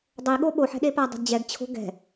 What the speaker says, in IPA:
dˤ ɛ i̯ ɠ o ɓ o ħ ɛ̤ ɗ e p a dˤ ɛ̤ d d͡ʑ ɛ ɡ t͡ɕʰ o̤ ɡ ɛ̤

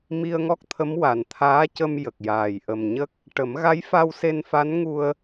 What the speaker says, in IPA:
m i˧ ə̯ ŋ ɔ˦˥ k̚ t̪ʰ ə˧˥ m w a˨˩ n t̪ʰ aː˧˥ c ə˧ m j ə˨˩ k̚ j aː˨˩ j ʔ ə˨˩ m ɲ ə˦˥ k̚ | ʈ ə˨˩˦ m ɣ a˧˥ j f a˧ w s e˧ n f a˧˥ n ŋ u˧ ə̯

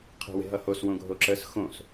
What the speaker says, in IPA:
qʰ ɛ̤ w e̤ ɦ ʌ h o s w õ ɡʱ o ǁ ə s x õ s

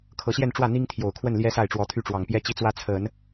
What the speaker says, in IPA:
kʰ ɤ˧˥ ɕ j ɛ˥˧ n ʈ͡ʂ w ä˥˩ n̪ i˥ ŋ t̪ʰ j o˨˩ ʊ̯ kʰ w ə˥˩ n l j ɛ˥ s a˥˩ ɪ̯ ʈ͡ʂ w ɔ˧˥ t̪ʰ y˥˩ ʈ͡ʂ w ɑ˨˩ ŋ p j ɛ˥˧ t͡ɕ i˥˩ t͡s w ä˥ t͡sʰ ə˨˩˦ n

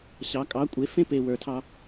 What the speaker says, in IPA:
ɕ ɑ˩˧ kʼ ɑ˩˥ kʷʼ e˩˥ f ẽ˥ p e˨˩ w ə˞˩˧ tʰ ɑ˧

